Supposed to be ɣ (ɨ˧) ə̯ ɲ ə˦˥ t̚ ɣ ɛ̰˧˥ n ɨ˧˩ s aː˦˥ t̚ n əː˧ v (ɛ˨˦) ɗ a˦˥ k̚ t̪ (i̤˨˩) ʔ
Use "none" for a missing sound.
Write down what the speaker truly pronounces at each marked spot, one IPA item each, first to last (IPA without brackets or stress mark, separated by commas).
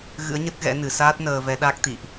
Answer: ɨ̰˧˥, ɛ˨˦, ḭ˧˨